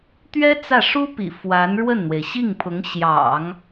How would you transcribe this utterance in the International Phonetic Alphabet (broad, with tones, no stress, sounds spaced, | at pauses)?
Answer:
t̪ ɥ ɛ˥ t͡s ä˥˩ ʂ u˥ p ḭ˨˩ f w a˧˥ n ɻ w ə˥˩ n n̪ w e˩ ɪ̯ ɕ i˥˩ ŋ pʰ ʊ˧˥ ŋ ɕ j ɑ̰˨˩˦ ŋ